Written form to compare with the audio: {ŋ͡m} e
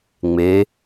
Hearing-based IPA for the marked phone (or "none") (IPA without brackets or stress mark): ŋ͡m